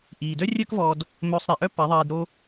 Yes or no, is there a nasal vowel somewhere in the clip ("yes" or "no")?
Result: no